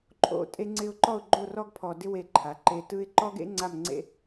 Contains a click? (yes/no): yes